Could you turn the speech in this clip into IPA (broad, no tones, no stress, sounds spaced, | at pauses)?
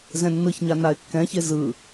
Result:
z ɛ̃ nː ɯ ç ɲ a n a ɪ̯ kː ɛ̃ ç e z ɯ